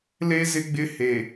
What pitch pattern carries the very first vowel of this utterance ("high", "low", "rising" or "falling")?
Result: high